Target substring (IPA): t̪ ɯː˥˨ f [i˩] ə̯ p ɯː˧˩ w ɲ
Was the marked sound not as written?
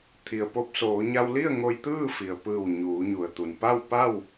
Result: no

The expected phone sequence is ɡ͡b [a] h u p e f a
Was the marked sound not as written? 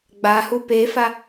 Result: no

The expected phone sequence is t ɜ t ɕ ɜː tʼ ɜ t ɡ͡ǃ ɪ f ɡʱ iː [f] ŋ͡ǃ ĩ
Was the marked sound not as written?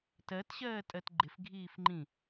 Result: no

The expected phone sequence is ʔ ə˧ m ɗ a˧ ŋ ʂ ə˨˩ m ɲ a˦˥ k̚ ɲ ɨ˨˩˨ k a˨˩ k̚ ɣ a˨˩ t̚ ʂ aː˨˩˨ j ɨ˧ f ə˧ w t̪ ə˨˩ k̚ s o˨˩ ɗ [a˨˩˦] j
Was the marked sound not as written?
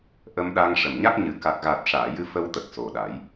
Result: no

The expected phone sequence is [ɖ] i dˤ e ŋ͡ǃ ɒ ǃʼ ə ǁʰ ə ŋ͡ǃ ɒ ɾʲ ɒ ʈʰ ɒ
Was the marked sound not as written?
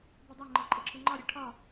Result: yes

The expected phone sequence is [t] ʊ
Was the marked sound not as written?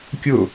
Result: yes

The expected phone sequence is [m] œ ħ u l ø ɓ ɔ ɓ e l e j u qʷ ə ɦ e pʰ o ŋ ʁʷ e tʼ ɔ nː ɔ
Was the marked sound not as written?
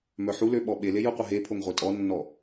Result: no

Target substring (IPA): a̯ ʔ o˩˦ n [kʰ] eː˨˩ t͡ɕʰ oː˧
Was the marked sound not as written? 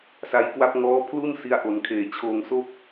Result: no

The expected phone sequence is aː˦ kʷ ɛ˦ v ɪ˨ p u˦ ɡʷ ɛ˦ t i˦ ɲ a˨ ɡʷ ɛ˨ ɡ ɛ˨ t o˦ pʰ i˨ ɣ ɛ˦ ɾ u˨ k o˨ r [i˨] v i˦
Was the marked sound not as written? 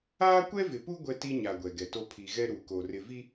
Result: yes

